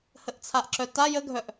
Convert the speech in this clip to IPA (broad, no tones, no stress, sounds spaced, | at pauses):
h ə ʔ t͡sʰ a ʔ ǁ œ t a j ə ɡʱ œ ʔ